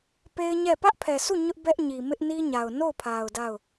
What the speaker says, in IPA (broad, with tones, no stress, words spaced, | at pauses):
pe˦ɪ̯ɲɛ˦˨ pä˦ʔpʰɛ˨sʰu˦˨ ɲʊ˦ʔbɛ˦ʔ ɲi˨mɪ˦ʔni˦ɲa˨ʊ̯ no˦˨ʊ̯pʰa˨ʊ̯ da˦˨ʊ̯